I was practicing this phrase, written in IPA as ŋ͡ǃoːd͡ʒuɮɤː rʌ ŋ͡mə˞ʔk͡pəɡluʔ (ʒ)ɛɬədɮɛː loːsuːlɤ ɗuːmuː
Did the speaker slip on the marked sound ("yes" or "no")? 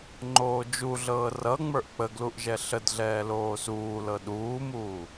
no